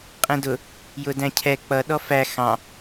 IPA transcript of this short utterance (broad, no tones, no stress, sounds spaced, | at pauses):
qʼ ɛ̃ d ʊ | j ʊ d æ̃ cʰ ɛ k͡p ʌ ɗ ɔ f æ x ɑ̃